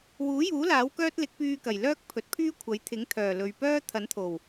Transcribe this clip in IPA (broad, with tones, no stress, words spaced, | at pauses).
wuː˨˥juː˨˥ laː˨˥wkœː˥t̚lɪ˨˥k̚ pyː˧kɐ˨˩j lœː˥k̚pʰɵ˨t̚pʰyː˥kʷʰɐ˨˥j t̪ʰɪ˨˥ŋt̪ʰœː˨˩ lɵ˨ɥpœː˥ t̪ʰɐ˨˥nt̪ʰo˨˩w